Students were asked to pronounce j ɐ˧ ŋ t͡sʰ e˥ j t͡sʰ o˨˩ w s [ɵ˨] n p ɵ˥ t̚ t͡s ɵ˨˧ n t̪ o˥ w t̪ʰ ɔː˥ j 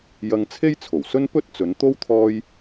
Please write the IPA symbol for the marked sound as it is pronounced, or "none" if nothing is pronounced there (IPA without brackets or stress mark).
ɵ˥